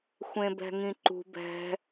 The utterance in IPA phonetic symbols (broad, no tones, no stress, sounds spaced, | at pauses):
xʷ ẽ b ɛ̤ ŋ ĩ ǃ ṳ b ɛ̤